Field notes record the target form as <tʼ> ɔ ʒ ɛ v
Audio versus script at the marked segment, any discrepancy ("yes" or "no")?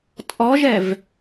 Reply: no